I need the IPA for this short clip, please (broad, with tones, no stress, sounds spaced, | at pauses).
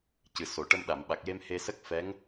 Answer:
c ɨ˨˩ s o˨˩˨ ʈ ə˧ m ɗ a˨˩˨ m ɓ a˨˩ k̚ j e˧ m h e˧ s ə˦˥ k̚ f ɛ˧˥ ŋ